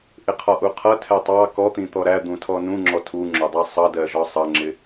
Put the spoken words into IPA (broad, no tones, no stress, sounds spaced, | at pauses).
ʔ ɪ qʰ ɒ ʔ u qʰ ʌ tʰ ɛ tˤ ɑ k ɔ t̪ ĩ t̪ ɔ ɾ æ d̪ ũ tʰ ɔ n ũ ŋ͡ǁ ɔ tʰ u ŋ͡ǁ ʊ dˤ ɜ sˤ ʌ d ɜ ʒ ɒ sˤ ʌ ŋ͡ǁ ɪ